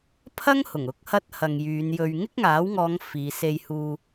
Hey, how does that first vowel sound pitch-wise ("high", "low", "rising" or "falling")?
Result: high